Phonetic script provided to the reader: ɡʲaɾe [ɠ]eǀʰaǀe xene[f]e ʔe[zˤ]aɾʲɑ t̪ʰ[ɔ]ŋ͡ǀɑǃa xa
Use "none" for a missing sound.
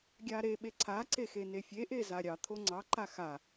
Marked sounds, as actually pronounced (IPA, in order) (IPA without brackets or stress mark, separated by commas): ɓ, fʲ, z, o